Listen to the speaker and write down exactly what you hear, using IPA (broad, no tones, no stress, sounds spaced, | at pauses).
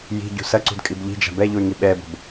j i̤ ɟ ṳ s ɐ ǀ ṳ d kʼ i b ʎ i̤ d͡ʒ a̤ b ɛ ʎ u y̯ ŋ i ɓ ɛ b o̤ b